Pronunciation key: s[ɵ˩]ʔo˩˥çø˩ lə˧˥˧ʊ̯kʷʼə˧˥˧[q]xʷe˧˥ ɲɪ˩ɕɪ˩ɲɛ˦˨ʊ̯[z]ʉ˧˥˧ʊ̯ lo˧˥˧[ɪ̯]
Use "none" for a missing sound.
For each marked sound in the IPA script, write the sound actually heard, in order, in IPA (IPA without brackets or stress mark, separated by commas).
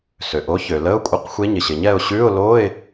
ø˩, q, ɕ, ɪ̯